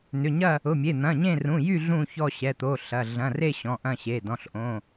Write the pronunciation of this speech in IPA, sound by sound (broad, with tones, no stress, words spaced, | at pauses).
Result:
nʏ˩˧˩ɲɐ˦˨ | ʊ˩˧˩mʲe˩˧˩ n̪ɐ̃˩˧˩ɲẽ˦˨ rũ˩˧˩jy˦˨ ɮũ˦˨çɔ˦˨ ɕɛ˩˧˩t̪o˩˧˩ɬɐ˩˧˩ ɮɐ̃˩˧˩re˦˨ ɕɔ̃˩˧˩ʔɐ̃˦˨ɕe˩˧˩ dɔ̃˩˧˩ɬʔõ˩˧˩